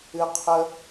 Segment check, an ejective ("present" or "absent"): absent